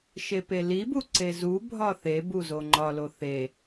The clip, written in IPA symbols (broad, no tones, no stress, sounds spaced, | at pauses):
ʃ e p e l i b u ǀ e z u bʱ ɒ θ e b u z o ŋ͡ǃ ɒ l o θ e